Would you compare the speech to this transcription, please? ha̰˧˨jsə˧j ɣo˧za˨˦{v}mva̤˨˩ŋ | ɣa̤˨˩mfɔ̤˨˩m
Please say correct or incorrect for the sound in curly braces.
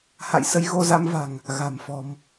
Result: incorrect